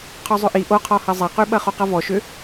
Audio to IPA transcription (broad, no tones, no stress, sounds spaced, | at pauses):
qʰ ɔ zˤ ʏ ʔ i ʔ o qʰ ɔ h ɐ zˤ ɐ q y ɓ ɐ χ o q ɐ v ɔ ʃ ʏ